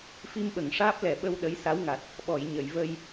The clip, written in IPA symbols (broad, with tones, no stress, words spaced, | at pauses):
fi˧mɓə˨˩˨ŋʂaː˦˥p̚ lɛ˨˩ɓə˧w ɗə˧˥jsa˧˥wŋa˨˩t̚ | ɓɔ˨˩˨j ɲə˨˩˨jvə˧j